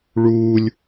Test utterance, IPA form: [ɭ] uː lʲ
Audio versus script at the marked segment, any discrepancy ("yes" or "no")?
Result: no